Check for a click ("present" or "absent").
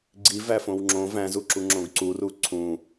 present